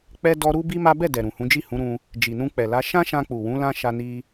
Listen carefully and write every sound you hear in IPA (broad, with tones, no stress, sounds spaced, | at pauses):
k͡p ɛ˦ d ɔ˦ ɾ u˦ b i˦ m a˦ b ɛ˦˨ d ɛ˨ ɾ ũ˨ h ũ˨˦ d͡ʒ i˦˨ h ũ˨˦ ɾ ũ˧ | d͡ʒ i˨ n ũ˧ k͡p ɛ˨ l a˨˦ ʃ ã˦ ʃ ã˧ k͡p u˨ w ũ˨˦ l ã˦ ʃ a˧ n i˧